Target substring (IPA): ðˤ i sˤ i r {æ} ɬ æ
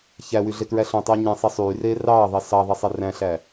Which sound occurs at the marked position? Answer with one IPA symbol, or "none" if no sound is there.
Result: æ̃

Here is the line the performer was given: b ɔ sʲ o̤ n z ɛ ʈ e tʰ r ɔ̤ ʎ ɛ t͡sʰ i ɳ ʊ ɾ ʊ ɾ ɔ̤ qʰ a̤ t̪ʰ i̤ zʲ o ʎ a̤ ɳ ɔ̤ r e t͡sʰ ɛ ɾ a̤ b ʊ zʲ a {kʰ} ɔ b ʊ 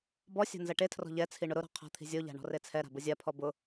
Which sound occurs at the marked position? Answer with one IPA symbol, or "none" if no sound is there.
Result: pʰ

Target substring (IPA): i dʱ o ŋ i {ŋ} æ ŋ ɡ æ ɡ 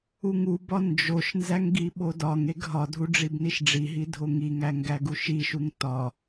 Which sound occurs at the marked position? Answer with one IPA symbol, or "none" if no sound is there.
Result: ŋ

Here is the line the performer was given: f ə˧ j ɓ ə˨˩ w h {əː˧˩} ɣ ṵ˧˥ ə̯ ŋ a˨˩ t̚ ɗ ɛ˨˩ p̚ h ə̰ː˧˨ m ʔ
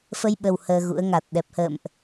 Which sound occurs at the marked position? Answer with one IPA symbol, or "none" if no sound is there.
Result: əː˧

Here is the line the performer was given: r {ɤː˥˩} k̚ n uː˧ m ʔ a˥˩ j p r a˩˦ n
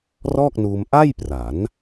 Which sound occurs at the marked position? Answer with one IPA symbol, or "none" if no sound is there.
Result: ɔː˥˩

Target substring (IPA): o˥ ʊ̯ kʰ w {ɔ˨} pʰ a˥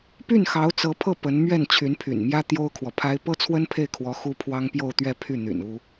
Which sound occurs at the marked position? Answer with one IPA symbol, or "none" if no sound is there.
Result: ɔ˨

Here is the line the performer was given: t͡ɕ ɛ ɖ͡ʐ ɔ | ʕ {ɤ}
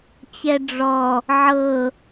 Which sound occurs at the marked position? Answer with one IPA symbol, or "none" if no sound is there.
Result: ɤ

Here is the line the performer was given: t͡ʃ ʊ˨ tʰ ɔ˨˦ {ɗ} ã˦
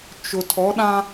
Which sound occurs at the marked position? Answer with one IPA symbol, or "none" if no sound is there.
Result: ɗ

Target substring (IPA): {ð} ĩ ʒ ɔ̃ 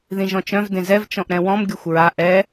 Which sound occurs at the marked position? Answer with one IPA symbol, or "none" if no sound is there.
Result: ð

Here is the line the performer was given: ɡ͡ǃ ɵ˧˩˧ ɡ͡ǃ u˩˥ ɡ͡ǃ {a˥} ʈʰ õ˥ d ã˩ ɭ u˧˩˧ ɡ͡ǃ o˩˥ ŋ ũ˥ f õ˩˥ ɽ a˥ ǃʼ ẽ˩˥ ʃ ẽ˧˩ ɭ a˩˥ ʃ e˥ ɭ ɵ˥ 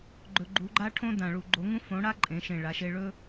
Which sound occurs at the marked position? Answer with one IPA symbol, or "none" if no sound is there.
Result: a˥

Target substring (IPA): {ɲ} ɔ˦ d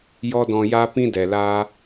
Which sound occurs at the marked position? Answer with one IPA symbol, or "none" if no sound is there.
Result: j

